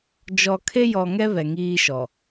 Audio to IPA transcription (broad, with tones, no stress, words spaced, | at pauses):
d͡ʒɔ˨kʰe˦jɔ˨ŋɛ˦ βɛ˨ŋiː˦ʃɔ˨